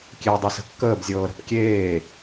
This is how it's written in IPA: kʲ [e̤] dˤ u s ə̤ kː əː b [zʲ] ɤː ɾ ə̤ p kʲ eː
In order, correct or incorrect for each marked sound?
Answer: incorrect: e, correct

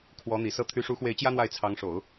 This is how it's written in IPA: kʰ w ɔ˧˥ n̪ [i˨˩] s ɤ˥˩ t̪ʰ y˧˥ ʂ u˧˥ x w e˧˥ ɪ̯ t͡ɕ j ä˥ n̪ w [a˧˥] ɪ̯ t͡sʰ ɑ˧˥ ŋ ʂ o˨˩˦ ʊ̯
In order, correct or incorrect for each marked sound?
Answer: correct, incorrect: a˥˩

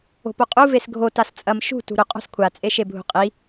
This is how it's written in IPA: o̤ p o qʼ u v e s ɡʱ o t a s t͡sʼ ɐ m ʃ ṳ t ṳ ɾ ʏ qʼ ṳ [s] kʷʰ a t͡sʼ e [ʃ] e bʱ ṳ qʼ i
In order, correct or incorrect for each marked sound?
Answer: correct, correct

